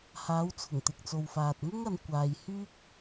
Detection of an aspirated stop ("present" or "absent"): present